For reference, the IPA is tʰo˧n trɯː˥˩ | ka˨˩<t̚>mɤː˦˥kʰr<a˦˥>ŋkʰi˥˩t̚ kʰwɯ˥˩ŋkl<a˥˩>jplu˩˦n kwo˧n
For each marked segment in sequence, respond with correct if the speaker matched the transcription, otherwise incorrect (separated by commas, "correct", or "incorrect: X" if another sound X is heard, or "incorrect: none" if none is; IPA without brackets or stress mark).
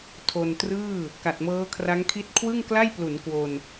correct, correct, correct